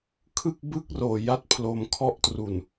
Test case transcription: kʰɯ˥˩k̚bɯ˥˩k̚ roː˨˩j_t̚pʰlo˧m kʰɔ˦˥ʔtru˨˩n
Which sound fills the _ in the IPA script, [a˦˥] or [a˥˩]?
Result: a˦˥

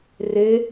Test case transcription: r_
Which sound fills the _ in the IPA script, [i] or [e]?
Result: e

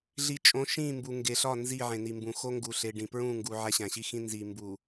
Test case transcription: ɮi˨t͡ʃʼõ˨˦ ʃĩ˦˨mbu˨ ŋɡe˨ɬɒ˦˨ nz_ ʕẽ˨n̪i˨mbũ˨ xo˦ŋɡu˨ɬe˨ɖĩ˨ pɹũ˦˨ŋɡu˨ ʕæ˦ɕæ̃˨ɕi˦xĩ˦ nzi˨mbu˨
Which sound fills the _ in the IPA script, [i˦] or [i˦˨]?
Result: i˦˨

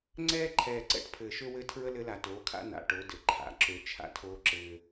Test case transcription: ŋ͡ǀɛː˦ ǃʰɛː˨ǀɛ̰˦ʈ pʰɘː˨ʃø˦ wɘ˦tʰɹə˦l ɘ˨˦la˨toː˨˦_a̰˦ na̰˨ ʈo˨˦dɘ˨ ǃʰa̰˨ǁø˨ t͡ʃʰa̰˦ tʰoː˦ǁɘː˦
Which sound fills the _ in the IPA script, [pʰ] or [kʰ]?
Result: kʰ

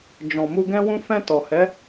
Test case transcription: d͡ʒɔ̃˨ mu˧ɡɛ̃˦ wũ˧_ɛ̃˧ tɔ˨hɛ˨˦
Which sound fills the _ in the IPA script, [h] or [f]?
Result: f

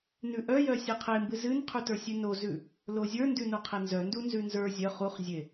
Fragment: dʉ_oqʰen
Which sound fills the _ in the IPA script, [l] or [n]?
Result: n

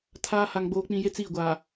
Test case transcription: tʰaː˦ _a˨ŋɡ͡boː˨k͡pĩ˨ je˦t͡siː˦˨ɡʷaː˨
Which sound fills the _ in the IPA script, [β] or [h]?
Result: h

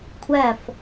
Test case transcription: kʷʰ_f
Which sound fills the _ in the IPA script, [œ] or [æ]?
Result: æ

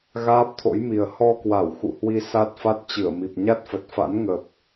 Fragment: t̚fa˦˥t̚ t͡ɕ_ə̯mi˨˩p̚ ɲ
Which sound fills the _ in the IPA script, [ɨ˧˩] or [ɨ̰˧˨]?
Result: ɨ˧˩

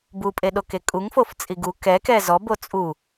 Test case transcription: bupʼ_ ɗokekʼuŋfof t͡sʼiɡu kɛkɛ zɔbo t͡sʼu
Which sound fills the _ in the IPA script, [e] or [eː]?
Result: e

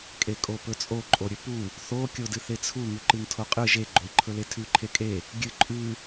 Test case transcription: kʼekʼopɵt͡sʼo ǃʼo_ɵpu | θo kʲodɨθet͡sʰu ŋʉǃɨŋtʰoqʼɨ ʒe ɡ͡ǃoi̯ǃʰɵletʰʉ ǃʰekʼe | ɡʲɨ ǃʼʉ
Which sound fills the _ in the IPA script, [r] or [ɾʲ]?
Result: ɾʲ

